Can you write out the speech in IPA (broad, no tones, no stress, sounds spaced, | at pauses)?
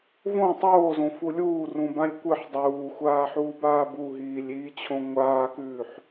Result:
v õ tˤ oː z õ f u lʲ uː r ũ b ã lʲ kʷ ɨ ħ dˤ uː xʷ aː ħ uː b aː b u ɦ iː lʲ iː t͡ɕʰ õ ŋʷ aː k ʉː ħ